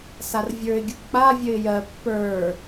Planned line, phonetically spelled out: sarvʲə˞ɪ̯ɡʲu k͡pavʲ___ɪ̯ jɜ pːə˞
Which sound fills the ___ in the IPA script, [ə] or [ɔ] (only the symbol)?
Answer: ə